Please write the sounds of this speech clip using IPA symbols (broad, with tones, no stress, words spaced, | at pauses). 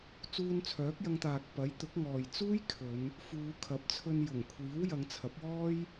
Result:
t͡suː˧nt͡sʰœː˨˥k̚jɐ˧ŋt̪aː˨k̚ pɐ˨˥jt̪ʊ˨˥k̚ŋɔː˨j t͡suː˥jkʰɵ˨˧n | fuː˨˧kʰɐ˨˥p̚t͡sʰɵ˧n jʊ˨˩ŋkʷʰiː˨˥w jɐ˨˧ŋt͡sʰɐ˨˥p̚wɔː˥j